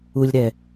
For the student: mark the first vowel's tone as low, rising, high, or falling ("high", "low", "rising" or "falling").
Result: low